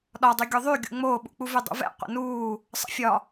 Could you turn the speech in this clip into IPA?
ɗɒdˤy ɡʲoðˤyɡʲṵ ŋ͡moːɓṵk͡puvy dˤṵvɛ̰ qʷə̰nuː | sˤə̰fʲɒ

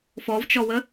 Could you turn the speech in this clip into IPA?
fɔvt͡ʃɔwə

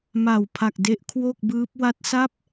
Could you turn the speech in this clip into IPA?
ma˨˩wpʰa˨˩k̚de˦˥ʔ kʰwo˥˩k̚bɯː˦˥p̚ wa˦˥t̚sa˥˩p̚

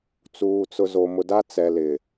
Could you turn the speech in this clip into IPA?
t͡suː˨t͡sʊ˨zo˨ mʊ˨da˦t͡sɛ˨ lɪ˨

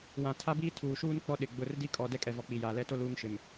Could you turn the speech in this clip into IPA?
wã˨ tʰa˦biː˦ tʰuː˨ʃuː˦n k͡pɔ˦ ɗɪ˨ɡ͡bʊ˦˨r di˦kʼɔ˨ dɛ˦kʼɛ˨ vɔ˨k͡pi˨jaː˨ lɛ˦to˦ luː˦ŋʃɪ˨m

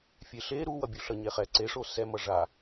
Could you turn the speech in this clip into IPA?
fʲeɬe ɾuwʌ bʲuɬʌɲeχɛ ǀeʂo sɛ mʌʐa

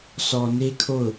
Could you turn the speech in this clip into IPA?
sɔ˨ne˦kʰo˦˨ʊ̯

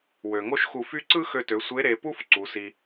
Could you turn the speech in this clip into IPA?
wø˩ŋo˥ʃxu˧fy˥ ǀɯ˥xø˧tø˩˧ sʷe˧˥ɾe˩˧pu˥f ǀu˩˧si˧

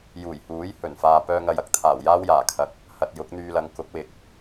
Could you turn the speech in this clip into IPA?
juː˨˩jhuː˨˥j hɵ˨˩nfaː˨ pœː˧ŋɐ˨jɐ˨k̚t̪ʰaː˨˩w jaː˥wjaː˨˩ kʰɐ˨k̚ | hɐ˨t̚ jʊ˨˥k̚n̪yː˧lɐ˨˧ŋkʊ˨˥k̚ wɪ˨k̚

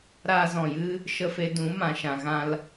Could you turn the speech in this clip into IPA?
ɾaː˧zɔ̃˨jɨ˦ | ʃə˧fe˧ dũ˨˦ mã˨ʃã˨ ɣã˧l

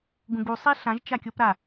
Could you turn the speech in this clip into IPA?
ɡũɡu sˤeɬãʒ t͡ʃakʲopɾa

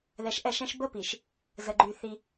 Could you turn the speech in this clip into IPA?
ðɛ˨ʃʔɛ˦˨ʃɛ̃˦ʃ bə˦pi˨ʃ | zə˨ ɡ͡ǃy˨ θi˦

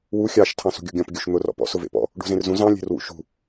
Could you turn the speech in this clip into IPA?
wu xʲɑʃ tʰɑ̃sṳɡʲuɡʲɔ̃p ɡʲuʃn̪ʊ rɔ̰pɔ̰ sʊvḛpɔ̰ | ɖṳzẽrzũ zɑ̃ lʲe̤rwṵʃṳ

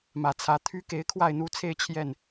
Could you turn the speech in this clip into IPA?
mä˨˩ t͡sʰä˨˦t̪ʰy˦ ke˨˦ɪ̯kʰwa˥˨ɪ̯n̪u˥˨t͡sʰe˥˨ɪ̯ t͡ɕʰjɛ˥˨n

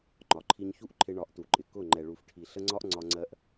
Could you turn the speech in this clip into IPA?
ŋ͡ǃɒ˨ǃʰi˧ɲçu˦ʔ ǃʰɪ˧ɳɒ˨˦ʔtu˨ǃʼɪ˨ kʊ˦˨ ŋ͡ǃɛ˨ɭu˨fʈʰi˨ ɬə˧ŋ͡ǀɒ˧ʔ ŋ͡ǀɒ˧ŋ͡ǀɜ˧ʔ

